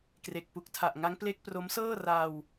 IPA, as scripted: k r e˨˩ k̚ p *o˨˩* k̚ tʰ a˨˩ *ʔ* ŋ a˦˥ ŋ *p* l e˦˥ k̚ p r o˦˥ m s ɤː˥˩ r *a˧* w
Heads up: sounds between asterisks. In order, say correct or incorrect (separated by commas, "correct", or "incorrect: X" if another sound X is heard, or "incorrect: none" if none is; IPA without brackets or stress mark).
incorrect: u˨˩, correct, correct, correct